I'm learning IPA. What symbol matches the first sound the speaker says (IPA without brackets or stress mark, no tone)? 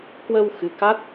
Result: k